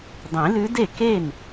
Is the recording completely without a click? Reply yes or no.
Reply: yes